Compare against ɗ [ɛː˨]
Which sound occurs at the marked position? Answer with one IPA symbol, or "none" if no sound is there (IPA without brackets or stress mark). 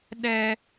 ɛ˨